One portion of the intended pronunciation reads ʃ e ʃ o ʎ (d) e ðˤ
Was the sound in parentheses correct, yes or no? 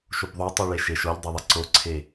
no